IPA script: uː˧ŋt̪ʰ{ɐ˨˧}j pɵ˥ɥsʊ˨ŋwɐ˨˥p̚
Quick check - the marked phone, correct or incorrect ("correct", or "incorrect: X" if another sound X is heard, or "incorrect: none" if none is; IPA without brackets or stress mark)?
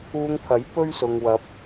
incorrect: ɐ˨˥